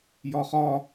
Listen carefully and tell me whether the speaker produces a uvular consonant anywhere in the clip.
yes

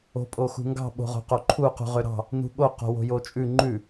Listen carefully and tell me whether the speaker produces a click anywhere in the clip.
yes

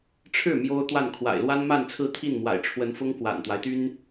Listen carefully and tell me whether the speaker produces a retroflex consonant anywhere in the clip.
yes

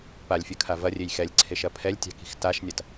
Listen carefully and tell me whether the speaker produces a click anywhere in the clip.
yes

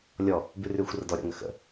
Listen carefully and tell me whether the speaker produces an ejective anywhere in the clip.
no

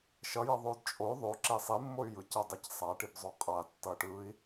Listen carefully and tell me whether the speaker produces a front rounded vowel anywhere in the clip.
yes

